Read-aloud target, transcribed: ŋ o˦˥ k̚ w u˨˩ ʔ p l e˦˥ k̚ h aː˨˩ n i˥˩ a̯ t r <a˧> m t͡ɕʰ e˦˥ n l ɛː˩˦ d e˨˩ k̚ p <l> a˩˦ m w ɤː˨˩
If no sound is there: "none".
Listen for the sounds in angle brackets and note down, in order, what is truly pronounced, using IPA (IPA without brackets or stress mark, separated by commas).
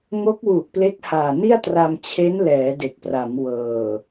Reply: a˧, r